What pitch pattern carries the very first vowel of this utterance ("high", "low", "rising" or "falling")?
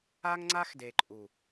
high